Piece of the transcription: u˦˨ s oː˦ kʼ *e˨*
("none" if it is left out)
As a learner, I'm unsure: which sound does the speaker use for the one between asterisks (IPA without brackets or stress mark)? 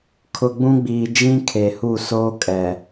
ɛ˨